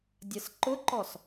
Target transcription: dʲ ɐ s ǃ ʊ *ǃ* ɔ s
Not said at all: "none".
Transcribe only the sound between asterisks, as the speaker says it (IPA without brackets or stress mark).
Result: ǃ